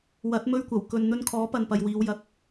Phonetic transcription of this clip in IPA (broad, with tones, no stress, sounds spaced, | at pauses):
w ɐ˨˥ t̚ m ɵ˧ ɥ kʷ ɐ˨˩ w k ɵ˨ n n̪ ɵ˧ n kʰ ɔː˨˥ p ɐ˨ n p ɐ˨ j w iː˨˧ w j ɐ˨˥ k̚